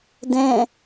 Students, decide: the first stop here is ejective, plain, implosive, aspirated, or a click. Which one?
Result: plain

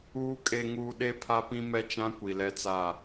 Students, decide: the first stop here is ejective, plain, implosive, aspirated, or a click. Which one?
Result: ejective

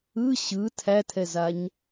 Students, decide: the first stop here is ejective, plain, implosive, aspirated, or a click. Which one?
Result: aspirated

